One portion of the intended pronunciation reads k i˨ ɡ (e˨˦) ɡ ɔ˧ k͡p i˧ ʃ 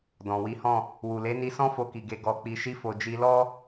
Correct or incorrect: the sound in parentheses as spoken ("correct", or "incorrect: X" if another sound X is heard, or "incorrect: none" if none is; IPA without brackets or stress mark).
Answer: correct